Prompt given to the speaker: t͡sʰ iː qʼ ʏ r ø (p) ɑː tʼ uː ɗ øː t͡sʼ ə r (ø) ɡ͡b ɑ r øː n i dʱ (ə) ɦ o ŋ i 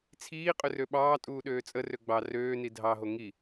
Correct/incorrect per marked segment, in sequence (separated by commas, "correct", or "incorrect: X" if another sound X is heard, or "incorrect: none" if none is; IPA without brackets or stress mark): incorrect: ɓ, correct, incorrect: ɑ